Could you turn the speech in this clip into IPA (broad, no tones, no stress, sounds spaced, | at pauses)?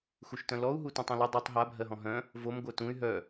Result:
x u ʃ t œ̃ l ɔ u̯ ɦ u t ũ tˤ œ̃ l u dˤ o tˤ ɦ a bʱ ɜ ɦ ɔ̃ ɦ œ̃ | v o m ɡʷ œ t ũ y̯ ɦ œ